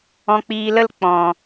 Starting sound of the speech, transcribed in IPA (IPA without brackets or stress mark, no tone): ɔ̃